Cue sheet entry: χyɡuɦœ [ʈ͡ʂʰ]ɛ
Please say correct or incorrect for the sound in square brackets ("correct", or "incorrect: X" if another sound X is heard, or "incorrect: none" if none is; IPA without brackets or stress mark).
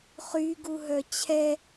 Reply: incorrect: t͡ɕʰ